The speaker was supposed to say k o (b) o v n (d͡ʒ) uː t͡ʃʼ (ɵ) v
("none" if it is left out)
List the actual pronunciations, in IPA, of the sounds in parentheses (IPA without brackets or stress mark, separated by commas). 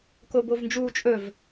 b, d͡ʒ, ɵ